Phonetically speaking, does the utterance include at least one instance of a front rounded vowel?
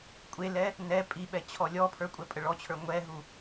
no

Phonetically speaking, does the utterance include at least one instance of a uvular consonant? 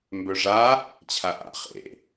yes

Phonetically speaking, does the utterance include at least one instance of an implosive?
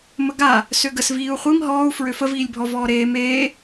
no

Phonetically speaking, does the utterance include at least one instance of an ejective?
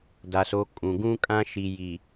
yes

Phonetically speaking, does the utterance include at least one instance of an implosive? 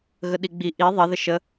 yes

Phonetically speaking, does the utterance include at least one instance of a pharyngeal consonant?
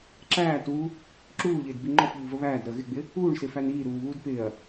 no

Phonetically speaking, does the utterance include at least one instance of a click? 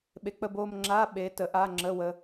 yes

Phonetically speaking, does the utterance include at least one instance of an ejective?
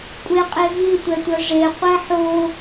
yes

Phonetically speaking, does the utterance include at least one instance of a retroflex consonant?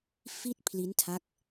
no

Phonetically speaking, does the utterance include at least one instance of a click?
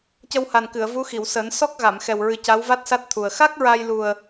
no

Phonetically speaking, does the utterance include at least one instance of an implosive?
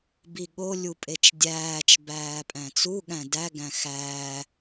yes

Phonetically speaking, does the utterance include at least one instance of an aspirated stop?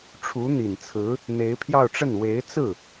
yes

